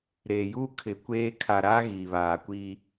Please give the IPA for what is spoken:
ɾ eː˨ j uː˦ kʰ ɪ˨ kʷ eː˦ kʰ a˨ ɾ aː˦ ɣ iː˨ β aː˨ kʷ iː˦

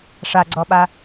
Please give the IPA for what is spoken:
ʂ a ɡ͡ǀ ɔ ɓ a

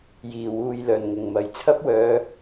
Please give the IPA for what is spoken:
j iː˨˩ w uː˨ j l œː˨˩ n ŋ ʊ˨˩ ŋ m ɐ˨˩ j t͡sʰ ɐ˥ p̚ w œː˨˧

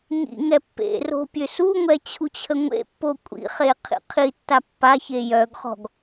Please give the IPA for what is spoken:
ɲ ḭ ŋ ɛ pː ḛ r o̤ pʲ ø s u ŋʷ ɛ t͡ɕʰ u t͡ɕʰ ə ŋʷ ḛ pː o kʷʼ ḭ χ e qʰ ḭ qʰ i tː a pː a ç e j œ ɡ χ ɔ̤ ɡ

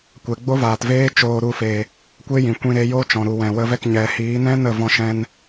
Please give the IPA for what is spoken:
kʷ ɛ˨ ɡ͡b o˦ v aː˨ t v eː˦ t͡ʃ oː˧ ɾ u˧ f e˨ | kʷ e˦ j ĩ˨ kʷ ĩ˧ ɾ e˧ j oː˦ t͡ʃ ɔ̃˨ ɾ u˨ w ɛ̃˨ w ə˧ v ɛ˦˨ k ɲ ɛ˨ h iː˨˦ n ɛ̃˦ n ə˦˨ v ɔ̃˧ ʃ ɛ̃˧ n

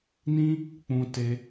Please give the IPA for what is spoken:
n ĩ˦ | k͡p ũ˦ t e˦

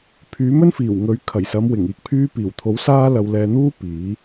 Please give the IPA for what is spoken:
pʰ yː˨˥ m ɵ˥ n f iː˨˩ w ŋ ɵ˨˥ ɥ kʰ ɐ˨˩ j s ɐ˨˧ m w ɪ˨˩ ŋ iː˨ k̚ pʰ yː˧ p iː˨˩ w t̪ʰ o˨˥ w s aː˥ l ɐ˧ w l ɛː˧ n̪ uː˥ p iː˨˥

